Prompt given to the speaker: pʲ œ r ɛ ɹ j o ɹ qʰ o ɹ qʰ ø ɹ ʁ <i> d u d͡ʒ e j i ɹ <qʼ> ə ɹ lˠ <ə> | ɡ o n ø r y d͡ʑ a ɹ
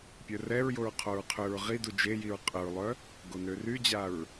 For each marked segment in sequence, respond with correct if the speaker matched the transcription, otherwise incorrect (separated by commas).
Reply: correct, correct, incorrect